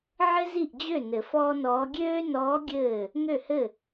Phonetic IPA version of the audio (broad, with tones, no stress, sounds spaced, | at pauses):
ʕ ɘ˥ z i˥˩ ʔ d͡ʑ ø˥˩ n ɘ˨˩˦ f ɔː˥ n ɔː˧˥ ɡʲ øː˥ n ɔː˧˥ ɡʲ ɘː˥˩ | ŋ ø˥˩ h ɘ˥˩